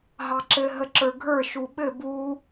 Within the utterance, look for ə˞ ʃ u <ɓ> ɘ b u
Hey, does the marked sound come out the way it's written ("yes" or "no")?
yes